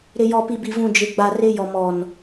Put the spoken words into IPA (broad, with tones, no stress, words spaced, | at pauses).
ɾɪ˨ jɔ˨pi˨bi˨ vũ˨d͡ʒɪ˨ɡ͡ba˨ rɪ˦jɔ˨mɔ˨n